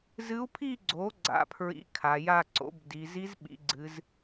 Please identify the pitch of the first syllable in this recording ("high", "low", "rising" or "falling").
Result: rising